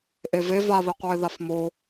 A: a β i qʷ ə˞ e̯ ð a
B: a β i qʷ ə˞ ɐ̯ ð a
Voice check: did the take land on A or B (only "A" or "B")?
A